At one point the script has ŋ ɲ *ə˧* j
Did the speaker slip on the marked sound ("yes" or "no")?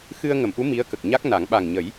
yes